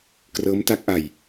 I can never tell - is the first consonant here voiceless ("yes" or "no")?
yes